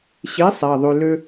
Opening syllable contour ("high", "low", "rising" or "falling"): rising